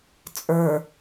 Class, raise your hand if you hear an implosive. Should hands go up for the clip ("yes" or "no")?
no